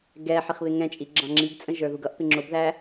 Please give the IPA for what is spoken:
ɡ ɛ ħ i χ β ɪ ŋ ɛ̃ t͡ʃʼ i ɡ͡ǁ ɑ̃ ŋ͡ǁ i ɡ t͡sʼ ə̃ ʒ ə˞ ð u ɡ ʌ ʔ p ɪ ŋ͡ǁ ʊ b ð æ

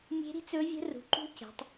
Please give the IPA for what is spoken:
mʲ e̤˦˥ ɾ i̤˦˥ t͡s ɵ˦˥ vʲ ə̤˦˥ r ṳ˨˦ ǃ ṳ˦˥ c e̤˨˦ tˤ

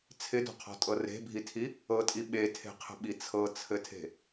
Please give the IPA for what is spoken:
t͡sʰ ɪ d ɔ̤ qʰ ɔ̤ tʼ ɤ r e̤ bʱ i tʰ i | ɤ tʼ i ɓ e tʰ e̤ qʰ ə̤ ɓ i t͡sʰ ɤ t͡sʰ ɘ tʰ e̤

